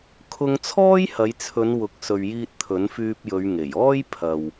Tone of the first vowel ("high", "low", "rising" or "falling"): high